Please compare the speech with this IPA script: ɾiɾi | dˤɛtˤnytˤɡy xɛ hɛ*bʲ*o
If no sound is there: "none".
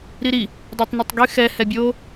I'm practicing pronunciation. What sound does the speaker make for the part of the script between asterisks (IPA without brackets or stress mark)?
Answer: bʲ